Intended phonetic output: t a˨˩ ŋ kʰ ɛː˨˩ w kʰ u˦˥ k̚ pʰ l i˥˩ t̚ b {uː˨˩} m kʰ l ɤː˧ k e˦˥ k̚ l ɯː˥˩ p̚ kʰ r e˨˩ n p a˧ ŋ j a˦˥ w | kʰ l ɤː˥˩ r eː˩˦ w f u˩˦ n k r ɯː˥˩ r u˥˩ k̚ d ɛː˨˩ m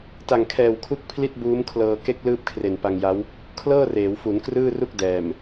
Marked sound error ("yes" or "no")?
yes